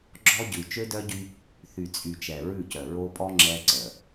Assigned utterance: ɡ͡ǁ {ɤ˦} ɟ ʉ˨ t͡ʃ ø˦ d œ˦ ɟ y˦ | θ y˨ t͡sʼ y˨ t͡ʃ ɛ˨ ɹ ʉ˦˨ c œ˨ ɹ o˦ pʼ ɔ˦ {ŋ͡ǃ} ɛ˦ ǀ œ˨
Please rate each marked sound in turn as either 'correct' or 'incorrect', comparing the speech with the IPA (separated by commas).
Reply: incorrect, incorrect